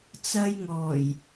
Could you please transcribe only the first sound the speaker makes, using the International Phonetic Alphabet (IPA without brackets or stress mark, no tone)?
t͡s